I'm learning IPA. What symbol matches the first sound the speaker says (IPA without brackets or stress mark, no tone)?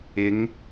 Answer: ɪ